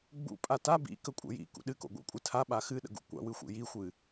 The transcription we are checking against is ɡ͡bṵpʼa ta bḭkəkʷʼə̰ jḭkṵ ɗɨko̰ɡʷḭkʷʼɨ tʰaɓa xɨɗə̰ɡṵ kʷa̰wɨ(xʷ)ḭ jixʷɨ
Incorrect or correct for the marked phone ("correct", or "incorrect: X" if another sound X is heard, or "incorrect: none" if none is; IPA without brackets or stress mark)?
correct